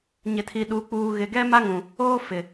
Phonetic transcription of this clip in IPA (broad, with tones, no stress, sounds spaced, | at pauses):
ɲ ɪ˨ tʰ i˨ ɗ u˨ k͡p uː˨ ɣ ɪ˨ ɡ ɛ˦ m a˦ ŋ ũ˨ | oː˦ f ɪ˨